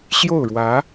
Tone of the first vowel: falling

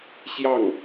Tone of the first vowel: falling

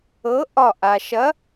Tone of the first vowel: rising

